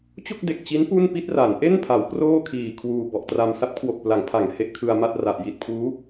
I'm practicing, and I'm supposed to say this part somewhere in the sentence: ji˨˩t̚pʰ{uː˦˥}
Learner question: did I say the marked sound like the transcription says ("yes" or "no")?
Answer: yes